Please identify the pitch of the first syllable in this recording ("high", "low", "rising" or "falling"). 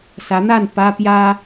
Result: rising